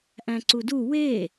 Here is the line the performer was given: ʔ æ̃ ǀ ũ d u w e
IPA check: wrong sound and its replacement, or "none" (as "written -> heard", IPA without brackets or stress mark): ũ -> u